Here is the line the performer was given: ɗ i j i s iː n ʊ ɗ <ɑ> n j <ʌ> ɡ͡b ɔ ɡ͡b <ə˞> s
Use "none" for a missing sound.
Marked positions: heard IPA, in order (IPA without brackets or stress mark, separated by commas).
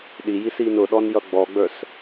ɔ, ʌ, ə˞